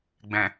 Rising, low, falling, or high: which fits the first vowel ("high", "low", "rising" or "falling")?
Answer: low